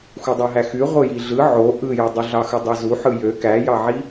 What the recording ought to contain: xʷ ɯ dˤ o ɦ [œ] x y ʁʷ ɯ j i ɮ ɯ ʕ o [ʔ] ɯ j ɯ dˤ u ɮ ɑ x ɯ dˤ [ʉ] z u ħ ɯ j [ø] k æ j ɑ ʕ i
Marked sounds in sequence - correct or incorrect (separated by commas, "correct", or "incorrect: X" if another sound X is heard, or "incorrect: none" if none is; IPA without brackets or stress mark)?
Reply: incorrect: æ, correct, incorrect: ø, correct